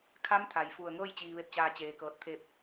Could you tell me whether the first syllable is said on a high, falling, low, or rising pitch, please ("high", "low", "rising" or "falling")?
rising